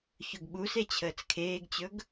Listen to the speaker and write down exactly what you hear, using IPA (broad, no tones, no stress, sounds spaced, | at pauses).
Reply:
ç ɵ ɡ ɓ u s e t͡ɕʰ əː t͡s kʰ eː ɡ t͡ɕ ɵ ɡ